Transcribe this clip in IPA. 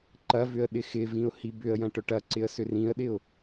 ǃɐvʏə̯ ɗɪxɪvĩʊ̯ hibʏə̯jɐ̃ ʈœʈɐǀɪə̯ sʏrĩə̯ɗɪʊ̯

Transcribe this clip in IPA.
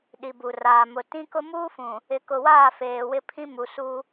ɗi˨bu˨raː˨ mʊ˨ tĩ˦kʊ˦ muː˦fũ˨ | ɪ˨kʊ˨waː˦˨ feː˨wɪ˦pʰĩ˦ mu˨su˦

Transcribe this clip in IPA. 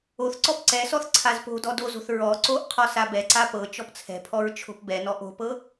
oθǀɔp ǀɛsɔθ ǀʰazpo̤dɔ dozo̤θ ɹɔ ǀoʔqʰɔ sabɛǀa pɤ t͡ʃɔpt͡sʰɛ̤pʰɔɹ t͡ʃʰo̤pbɛnɔ ʔo̤pɤ

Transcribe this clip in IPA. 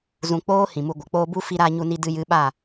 zũ˨ k͡poː˦ hĩ˨mu˧ɡʷə˨ k͡poː˧bu˦ fi˧ɾaː˧ɲu˧ni˧ dɨ˧jɨ˨˦ ɓa˦˨

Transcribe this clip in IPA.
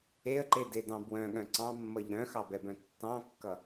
eə̯ǃededɑ̃ bwœ̃ɠœ̃ ǀɑ̃mːʌʎ ɾœ̃xɑbɛbœ̃ tːɑ̃kːʌ

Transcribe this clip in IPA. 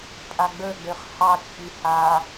pʼaɡ͡bə˞ɡ͡bøχ hɑt͡ʃʼi ha

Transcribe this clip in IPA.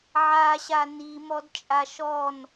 ʕaɕa nimɔdt͡ʃʼa ʃɔn

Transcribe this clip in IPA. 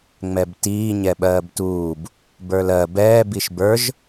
ŋ͡mɛbtiː ɲɛɓɜːbtuːb | bə˞lɜ bɛːbiʃ bə˞ʒ

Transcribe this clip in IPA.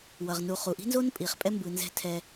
wʌ˨ʁnu˨ χu˨ʔi̤˦nzo˦n pʼi˨χ pʼɛ˦mbɯ˨nzɛ̤˦˨ tʰɛ˦

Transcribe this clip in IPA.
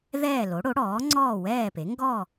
ðɛː˥˨lo˩˥ɽo˩˥ ɽɔː˩˥ŋ͡ǀɔː˥˨wɛː˥˨pe˩˥ ŋɡɔ˥˨

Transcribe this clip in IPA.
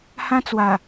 hã˦t͡swa˨˩

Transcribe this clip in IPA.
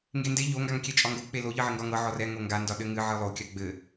ŋɡende ʎo ŋɡaŋkʲɛt͡ʃʼɒŋɡo k͡pelo ʎɨʕɘŋɡɒŋɤ ʕɔrɛ ŋoŋɡa ndɒɗɘŋɨ ʕɨlˠo kʲaɡ͡bɘ

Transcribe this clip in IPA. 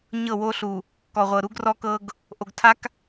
ɲɤ˦˨wo˦ɬu˨ | kɔ˨ʁʷɤ˨ ɾu˦ɡrɔ˦ kɤ˦ɡ | ʔo˨ɡtʰa˦k

